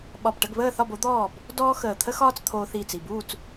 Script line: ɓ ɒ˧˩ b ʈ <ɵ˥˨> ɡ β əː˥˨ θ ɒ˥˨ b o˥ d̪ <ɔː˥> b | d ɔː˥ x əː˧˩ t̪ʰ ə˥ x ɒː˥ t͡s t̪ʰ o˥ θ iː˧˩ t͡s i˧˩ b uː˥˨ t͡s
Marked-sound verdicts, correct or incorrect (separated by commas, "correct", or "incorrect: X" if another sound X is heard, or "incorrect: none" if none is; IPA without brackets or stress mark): incorrect: ə˥˨, incorrect: ɔː˥˨